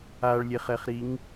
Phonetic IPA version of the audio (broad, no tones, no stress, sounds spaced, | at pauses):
a ɭ lʲ e χ ɛ χ ɾ i ŋ